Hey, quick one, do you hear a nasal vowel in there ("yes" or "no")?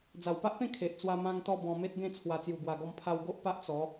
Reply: yes